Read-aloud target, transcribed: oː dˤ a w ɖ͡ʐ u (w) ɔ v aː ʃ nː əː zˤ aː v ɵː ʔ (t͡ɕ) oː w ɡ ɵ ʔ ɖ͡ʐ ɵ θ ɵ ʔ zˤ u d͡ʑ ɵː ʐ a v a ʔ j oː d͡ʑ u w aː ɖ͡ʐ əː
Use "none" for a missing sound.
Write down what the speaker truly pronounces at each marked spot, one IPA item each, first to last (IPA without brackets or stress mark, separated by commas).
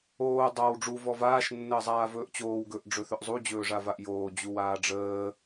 v, t͡ɕ